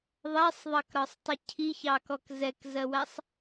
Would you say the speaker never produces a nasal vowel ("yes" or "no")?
yes